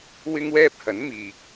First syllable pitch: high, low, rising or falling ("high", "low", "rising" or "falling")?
high